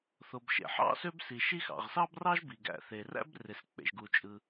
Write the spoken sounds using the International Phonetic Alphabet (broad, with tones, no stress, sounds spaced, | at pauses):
θ o˩ b ʃ ḛ˩ ħ ɑ̰˥ s ø˥ b s i˩ ʃ i˥ x ɑ̰˩ ʁ s ɑ˥ b r ɑ˥ ʒ b i˩ ɡ æ̰˩ θ e˩ r æ̰˥ b r e˩ s k͡p ḛ˩ ʒ ɡ u˩ t͡ʃʼ ɯ˩